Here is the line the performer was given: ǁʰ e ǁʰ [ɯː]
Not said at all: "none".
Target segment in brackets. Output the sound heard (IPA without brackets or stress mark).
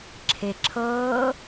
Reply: ɤː